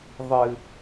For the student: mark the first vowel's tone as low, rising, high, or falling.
low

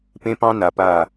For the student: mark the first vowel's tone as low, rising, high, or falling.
high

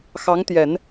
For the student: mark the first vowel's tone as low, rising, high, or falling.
rising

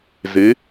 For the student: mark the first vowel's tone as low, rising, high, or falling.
rising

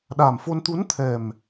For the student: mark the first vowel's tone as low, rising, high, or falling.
low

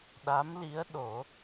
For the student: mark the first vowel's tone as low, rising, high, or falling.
rising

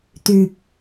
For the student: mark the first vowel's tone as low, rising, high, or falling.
low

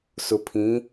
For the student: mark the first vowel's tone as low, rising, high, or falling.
low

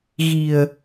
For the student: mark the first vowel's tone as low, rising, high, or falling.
low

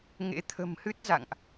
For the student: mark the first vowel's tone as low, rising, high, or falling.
rising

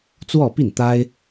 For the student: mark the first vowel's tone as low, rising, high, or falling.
falling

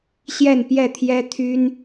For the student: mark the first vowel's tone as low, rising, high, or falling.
falling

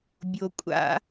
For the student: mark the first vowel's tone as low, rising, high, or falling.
low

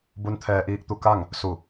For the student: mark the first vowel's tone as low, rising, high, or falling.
rising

